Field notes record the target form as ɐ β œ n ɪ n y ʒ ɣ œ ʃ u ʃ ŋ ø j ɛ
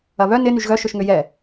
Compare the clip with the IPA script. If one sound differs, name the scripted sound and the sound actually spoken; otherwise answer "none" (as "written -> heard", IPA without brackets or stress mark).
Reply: u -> ʊ